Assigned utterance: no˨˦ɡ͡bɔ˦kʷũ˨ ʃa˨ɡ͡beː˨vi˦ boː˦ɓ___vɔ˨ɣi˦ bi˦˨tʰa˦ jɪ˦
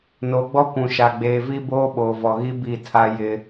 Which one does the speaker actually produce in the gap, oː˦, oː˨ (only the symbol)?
oː˨